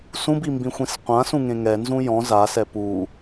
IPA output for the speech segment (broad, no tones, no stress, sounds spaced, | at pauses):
s ũ b i m b ĩ xʷ ĩ s qʷ ã s ũ ŋ ẽ ŋ ɛ n z ũ j ɔ̃ z a s ɛ p u